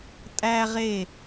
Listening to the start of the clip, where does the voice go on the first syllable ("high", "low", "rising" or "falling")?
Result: high